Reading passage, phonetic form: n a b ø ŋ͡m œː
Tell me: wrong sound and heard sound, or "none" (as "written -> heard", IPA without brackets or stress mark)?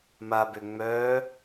n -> m